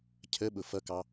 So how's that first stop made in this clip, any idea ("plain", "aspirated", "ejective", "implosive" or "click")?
aspirated